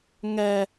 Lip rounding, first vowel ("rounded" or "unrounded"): unrounded